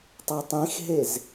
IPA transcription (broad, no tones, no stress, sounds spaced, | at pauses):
tˤ o tˤ ĩ x ɦ e z